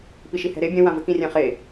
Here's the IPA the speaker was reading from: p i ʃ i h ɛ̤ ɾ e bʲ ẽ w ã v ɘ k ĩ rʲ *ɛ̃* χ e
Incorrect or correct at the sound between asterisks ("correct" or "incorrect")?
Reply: correct